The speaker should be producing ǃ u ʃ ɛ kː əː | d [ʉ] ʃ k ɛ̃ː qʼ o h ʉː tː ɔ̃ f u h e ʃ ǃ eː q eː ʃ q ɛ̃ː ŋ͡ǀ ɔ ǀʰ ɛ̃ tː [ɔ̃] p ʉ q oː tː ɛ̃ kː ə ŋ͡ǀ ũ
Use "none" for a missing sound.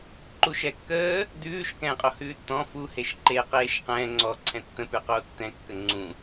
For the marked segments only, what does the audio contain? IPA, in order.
ʉː, ə̃

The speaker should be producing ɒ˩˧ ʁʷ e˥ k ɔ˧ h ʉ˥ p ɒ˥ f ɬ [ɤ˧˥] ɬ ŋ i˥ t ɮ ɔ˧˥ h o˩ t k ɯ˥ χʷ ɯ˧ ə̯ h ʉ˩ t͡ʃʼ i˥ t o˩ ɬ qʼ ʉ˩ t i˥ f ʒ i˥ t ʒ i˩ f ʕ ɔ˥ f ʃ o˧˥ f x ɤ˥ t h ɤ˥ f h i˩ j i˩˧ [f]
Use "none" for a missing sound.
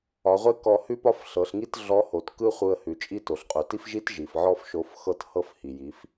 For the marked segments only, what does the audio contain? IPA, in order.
ɤ˩˧, f

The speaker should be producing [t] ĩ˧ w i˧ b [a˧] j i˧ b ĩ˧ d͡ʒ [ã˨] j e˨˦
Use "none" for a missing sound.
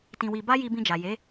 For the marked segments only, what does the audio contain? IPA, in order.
t, a˦, a˨

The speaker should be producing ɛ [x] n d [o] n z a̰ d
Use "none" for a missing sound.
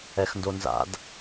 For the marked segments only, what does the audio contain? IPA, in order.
x, o

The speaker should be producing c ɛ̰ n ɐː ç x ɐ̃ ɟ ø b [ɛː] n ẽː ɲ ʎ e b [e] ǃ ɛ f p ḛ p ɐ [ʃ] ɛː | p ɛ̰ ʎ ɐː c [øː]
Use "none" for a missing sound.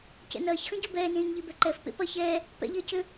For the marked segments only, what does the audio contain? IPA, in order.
ɛː, ɛ, ç, ø

